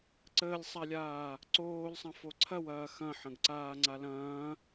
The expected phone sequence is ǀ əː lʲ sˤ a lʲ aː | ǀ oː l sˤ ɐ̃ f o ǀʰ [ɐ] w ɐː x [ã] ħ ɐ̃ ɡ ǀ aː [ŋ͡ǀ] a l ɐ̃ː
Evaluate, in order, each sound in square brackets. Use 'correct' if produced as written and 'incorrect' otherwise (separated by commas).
correct, incorrect, correct